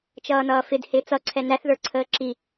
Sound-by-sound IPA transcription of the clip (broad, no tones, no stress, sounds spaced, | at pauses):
t͡ʃ ʌː n ʌː f ɪ d h ɪː t͡s ʌ ǀʰ ɛ n æ θ ð ə˞ ǀʰ əː ǁ i